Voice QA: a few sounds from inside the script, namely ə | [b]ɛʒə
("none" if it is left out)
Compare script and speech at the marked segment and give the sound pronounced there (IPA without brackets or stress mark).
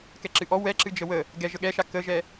ɡ